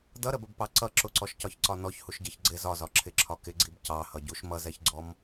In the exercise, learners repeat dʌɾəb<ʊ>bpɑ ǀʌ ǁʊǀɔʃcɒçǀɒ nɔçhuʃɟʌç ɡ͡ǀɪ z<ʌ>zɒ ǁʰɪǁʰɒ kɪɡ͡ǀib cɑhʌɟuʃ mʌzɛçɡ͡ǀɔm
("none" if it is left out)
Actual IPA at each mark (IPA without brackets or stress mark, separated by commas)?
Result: ə, ɒ